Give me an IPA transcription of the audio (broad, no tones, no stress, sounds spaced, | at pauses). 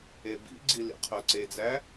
e b ḭ ɡ͡ǀ i l ḭ qʰ o ǀ e d͡z æ